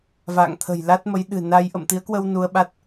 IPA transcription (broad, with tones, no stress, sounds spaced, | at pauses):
v a̰ː˧˨ ŋ t̪ʰ ə̤˨˩ j l a˦˥ t̚ m ə˨˦ j ɗ ɨ̤˨˩ n a˧ j ʔ ə̰˧˨ m t̪ i˨˦ ə̯ k w ə˧ w n u˧ ə̯ ɓ a˦˥ t̚